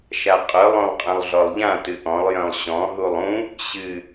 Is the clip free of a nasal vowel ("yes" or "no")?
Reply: no